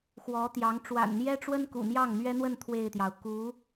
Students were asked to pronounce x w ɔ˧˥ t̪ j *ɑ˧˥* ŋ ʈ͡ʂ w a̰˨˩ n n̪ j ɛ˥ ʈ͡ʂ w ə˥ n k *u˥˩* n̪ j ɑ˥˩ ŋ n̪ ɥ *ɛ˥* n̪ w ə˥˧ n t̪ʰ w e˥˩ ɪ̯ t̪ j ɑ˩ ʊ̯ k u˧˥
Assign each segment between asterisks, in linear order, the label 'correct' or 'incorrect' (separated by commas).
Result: correct, incorrect, correct